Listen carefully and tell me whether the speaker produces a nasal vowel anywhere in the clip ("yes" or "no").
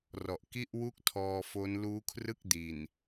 no